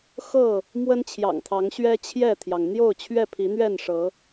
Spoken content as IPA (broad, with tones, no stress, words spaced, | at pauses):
xɤ˥˨ | mwə˦nt͡ɕʰjɑ̰˨˩ŋt̪ʰɑ˨˦ŋ ɕɥɛ˦t͡ɕʰjɛ˥˨t̪ʰjɑ˩ŋ n̪jo˥˨ʊ̯t͡ɕʰɥɛ˥˨pʰi˨˦ n̪ɥɛ˥˨nʂɤ˨˦